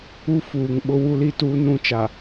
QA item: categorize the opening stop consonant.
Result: implosive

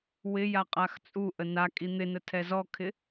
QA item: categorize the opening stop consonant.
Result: ejective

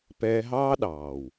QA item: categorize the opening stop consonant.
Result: plain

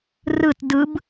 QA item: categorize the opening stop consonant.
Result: plain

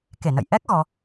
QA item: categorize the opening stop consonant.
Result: plain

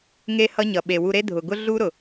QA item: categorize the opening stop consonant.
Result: implosive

